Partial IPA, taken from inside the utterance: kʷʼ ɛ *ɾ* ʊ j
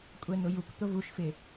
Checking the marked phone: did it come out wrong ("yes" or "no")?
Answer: yes